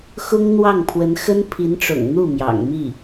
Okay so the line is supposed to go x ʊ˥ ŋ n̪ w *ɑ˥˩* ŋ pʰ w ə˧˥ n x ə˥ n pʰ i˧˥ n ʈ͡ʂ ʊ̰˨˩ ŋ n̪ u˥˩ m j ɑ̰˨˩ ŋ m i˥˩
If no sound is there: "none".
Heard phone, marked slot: ɑ˥˩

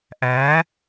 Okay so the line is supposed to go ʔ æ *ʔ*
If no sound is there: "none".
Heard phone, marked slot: none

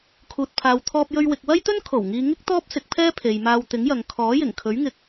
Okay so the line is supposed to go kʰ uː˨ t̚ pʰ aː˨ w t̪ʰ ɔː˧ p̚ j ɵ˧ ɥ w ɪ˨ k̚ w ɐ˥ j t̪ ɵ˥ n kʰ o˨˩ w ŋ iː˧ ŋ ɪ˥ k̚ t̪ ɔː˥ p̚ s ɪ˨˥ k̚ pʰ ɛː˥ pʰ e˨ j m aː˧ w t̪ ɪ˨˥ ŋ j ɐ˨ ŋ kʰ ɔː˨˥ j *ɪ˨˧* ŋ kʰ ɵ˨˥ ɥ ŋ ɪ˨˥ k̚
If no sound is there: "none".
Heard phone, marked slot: ɪ˨˩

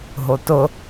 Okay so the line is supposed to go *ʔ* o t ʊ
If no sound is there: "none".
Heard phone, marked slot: ɦ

